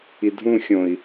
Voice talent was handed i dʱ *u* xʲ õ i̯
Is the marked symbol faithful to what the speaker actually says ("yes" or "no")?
no